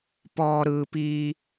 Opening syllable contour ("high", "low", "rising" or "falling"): low